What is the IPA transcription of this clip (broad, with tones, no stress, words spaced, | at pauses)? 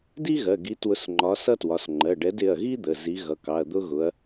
di˥ɣɜ˩˧˩ɡi˨˥twʊ˨˥s ŋ͡ǃɒ˨˥sʌ˥twɒ˩˧˩s ŋ͡ǃɜ˩˧˩ɖɛ˨˥dɪ˩˧˩ɐ̯ɣi˥ d̪ə˩˧˩ zi˨˥ɣʌ˩˧˩kɑ˩˧˩ɐ̯ d̪ʊ˥ɣʊ˨˥ɐ̯